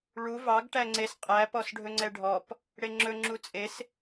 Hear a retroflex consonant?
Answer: yes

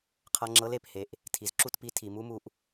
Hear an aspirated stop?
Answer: yes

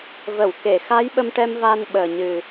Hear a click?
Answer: no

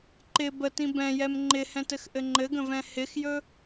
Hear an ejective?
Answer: no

